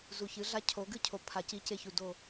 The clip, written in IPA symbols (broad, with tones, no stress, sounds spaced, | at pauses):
z u˨ ç ɨ˨˦ ɮ a˦ cʰ o˨˦ ɡ ɨ˦ cʰ o˨ pʰ a˨ c i˦ c e˦ ç u˨ d o˦˨